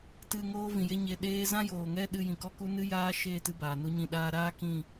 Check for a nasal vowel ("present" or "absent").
present